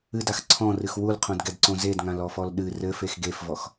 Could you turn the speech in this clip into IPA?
ɨdax ǀʰɔ̃rɨx wulqʰõdɡɛdǀõ zedŋãlɔfɔl ɗɨ rɘfex ɡefvɔx

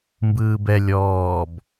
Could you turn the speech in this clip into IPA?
mbɯːbɛ lʲɔːb

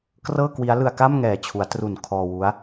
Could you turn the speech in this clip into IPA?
krɤː˥˩kwi˦˥a̯ lɯ˧a̯ka˥˩m ŋɛː˨˩t͡ɕʰu˩˦a̯tru˨˩n kʰɔː˧wu˦˥a̯

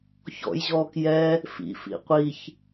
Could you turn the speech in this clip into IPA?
çɔ̰jʑɔːk jɛ | fḭfḭ qʷiç

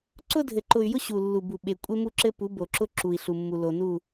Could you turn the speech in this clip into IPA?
ǀʊ˦dʱɘ˨ǃʊ˨y̯jʊ˦ ɕu˨lːu˨bu˨ ɓe˨ kʷʼe˦ mu˦ǁɘ˦pu˨˦ bo˨ǁʊ˦ ǁu˨i̯ɬu˨mːu˨ lo˨nu˦˨

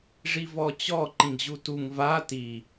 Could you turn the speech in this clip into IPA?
ʐivɔt͡ɕɔ ǃĩɡʑutuŋ va ti

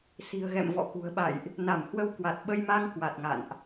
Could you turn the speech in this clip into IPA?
si̤˨˩ə̯ɣɛ̰˧˨m vɔ̰˧˨kṳ˨˩ə̯ɓa̰˧˨jʔ | na˧˩mhwə˧w kwa˨˩t̚ɓə˧jma˧ŋ kwa˨˩t̚ŋa̰˧˨nʔ

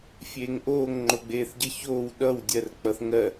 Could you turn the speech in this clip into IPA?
fʲeːŋʔoːŋ ŋ͡ǃoɡ͡beːθɟə çoːw ɗʌw dʲɜrk͡pʌθŋɜ

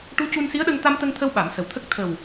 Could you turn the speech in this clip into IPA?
ʈu˧˥cu˧nsi˧˥ə̯ɗə˧ŋ t̪a˧mt̪ə˧ŋt̪ʰə˧w ɓa˨˩˦msə˨˩wt̪ʰə˦˥k̚ t̪ʰə˨˩w

